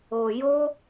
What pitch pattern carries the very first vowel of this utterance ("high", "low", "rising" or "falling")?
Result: low